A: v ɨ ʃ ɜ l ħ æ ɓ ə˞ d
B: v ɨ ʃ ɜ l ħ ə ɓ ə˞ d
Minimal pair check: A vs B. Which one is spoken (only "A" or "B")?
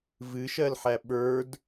A